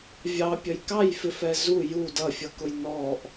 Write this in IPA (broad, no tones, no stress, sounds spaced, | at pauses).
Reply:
vʲ ɑ pʲ ə j k ɑ j f ɪ f ɛ z u j u d ʌ fʲ ʌ k ʊ j n ɔ ʔ